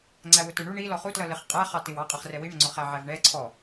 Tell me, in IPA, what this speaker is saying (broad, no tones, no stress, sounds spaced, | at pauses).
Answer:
ŋ͡ǀ æ w ʊ t ə˞ ɳ u ɳ i l ɔ χ u t l ʌ l ɪ χ qʼ æ χ ɑ t ɪ w ɑ qʼ ə χ r ɛ w i ɳ ə ŋ͡ǀ ʊ χ æ ʕ æ v ɳ ɛ ǀʰ ɔ